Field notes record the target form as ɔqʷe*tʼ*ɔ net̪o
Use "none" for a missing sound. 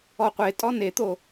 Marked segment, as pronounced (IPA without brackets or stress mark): tʼ